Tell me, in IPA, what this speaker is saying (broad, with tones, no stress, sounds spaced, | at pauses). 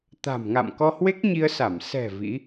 t̪ a̤˨˩ m ŋ a̰˧˨ m k ɔ˧ h w e˦˥ k̚ ɲ i˧ ə̯ s a˧˩ m s ɛ̤˨˩ v ḭ˧˥